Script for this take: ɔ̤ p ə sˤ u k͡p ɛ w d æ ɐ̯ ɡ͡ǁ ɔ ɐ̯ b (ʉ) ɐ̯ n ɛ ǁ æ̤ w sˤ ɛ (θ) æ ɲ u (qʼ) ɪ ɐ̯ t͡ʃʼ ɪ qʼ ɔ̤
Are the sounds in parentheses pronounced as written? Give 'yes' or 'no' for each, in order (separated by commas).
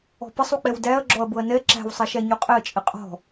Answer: no, no, yes